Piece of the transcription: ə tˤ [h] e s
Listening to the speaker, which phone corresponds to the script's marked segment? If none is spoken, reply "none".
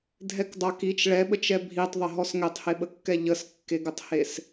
h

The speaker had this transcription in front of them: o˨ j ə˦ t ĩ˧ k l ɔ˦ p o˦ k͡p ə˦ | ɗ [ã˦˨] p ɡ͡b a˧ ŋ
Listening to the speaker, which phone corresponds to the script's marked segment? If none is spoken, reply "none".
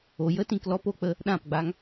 ã˦˨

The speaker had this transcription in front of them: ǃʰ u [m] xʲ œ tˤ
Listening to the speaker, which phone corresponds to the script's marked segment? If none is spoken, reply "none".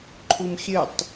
m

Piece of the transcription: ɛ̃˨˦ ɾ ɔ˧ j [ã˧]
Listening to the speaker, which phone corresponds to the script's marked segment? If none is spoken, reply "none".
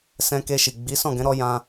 ã˧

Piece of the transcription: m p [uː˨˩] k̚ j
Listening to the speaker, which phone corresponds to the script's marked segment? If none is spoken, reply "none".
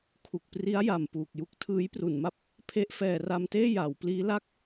uː˨˩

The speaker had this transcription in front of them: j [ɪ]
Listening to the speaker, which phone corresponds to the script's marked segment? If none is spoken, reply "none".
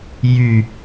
y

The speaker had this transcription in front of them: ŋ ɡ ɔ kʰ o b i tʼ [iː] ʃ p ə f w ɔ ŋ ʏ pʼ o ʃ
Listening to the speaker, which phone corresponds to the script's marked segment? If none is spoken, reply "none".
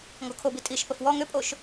i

